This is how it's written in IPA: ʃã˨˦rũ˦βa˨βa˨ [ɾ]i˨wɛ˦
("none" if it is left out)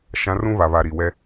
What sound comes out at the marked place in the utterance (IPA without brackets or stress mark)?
ɾ